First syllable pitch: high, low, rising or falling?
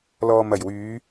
low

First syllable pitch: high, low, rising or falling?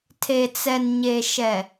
low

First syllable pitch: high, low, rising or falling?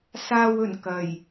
low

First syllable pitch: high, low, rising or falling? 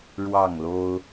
falling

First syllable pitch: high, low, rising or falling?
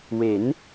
rising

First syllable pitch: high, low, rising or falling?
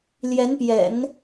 rising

